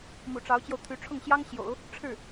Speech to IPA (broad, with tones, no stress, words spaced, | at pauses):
mṵ˨˩ʈ͡ʂɑ˧˥ʊ̯t͡ɕjo˧ʊ̯t̪ʰy˧˥ ʈ͡ʂʰʊ˥˩ŋɕjɑ˥ŋ ɕjo̰˨˩˦ʊ̯ | ʈ͡ʂʰɻ̩˥˩